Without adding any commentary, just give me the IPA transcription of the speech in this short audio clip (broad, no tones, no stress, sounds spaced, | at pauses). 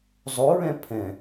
zˤ o ɹ ɛ̃ pʰ ɛ̃